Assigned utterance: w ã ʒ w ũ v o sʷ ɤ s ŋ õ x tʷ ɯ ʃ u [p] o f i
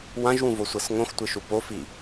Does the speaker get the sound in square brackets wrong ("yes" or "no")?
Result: no